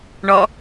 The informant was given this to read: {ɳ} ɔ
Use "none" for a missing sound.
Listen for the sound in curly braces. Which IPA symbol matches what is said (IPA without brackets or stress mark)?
ɳ